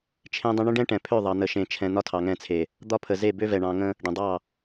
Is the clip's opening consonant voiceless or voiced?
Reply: voiceless